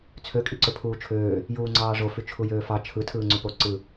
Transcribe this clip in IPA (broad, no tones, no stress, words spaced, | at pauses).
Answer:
t͡sʰø kʼiǀøpʰuːt͡ʃʰøː | juːŋ͡ǀɑːʐo fyt͡ʃʰujøːfɑ t͡ʃʰɯ tʰɯːŋ͡ǀypo ǀɯ